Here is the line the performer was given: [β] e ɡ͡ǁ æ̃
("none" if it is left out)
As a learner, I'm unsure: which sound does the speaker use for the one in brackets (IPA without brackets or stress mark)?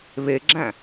β